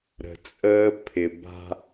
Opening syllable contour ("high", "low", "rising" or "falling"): low